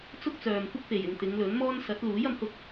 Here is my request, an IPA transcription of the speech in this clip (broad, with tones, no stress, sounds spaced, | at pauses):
t͡s ʊ˥ k̚ t͡s œː˨ m kʷ ɪ˥ k̚ p e˨˩ j ɪ˨ ŋ t̪ ɪ˨˧ ŋ l ɵ˨˥ n m ɔː˥ n s ɐ˨˥ t̚ l uː˨˥ j ɐ˨˥ m h ʊ˧ k̚